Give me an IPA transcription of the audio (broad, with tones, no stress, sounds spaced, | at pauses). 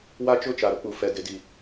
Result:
w a˦ t͡ʃ ʊ˦˨ t͡ʃ a˨ ɾ ʊ˦ k͡p u˨ f ɛ˨ d ɪ˨˦ d i˨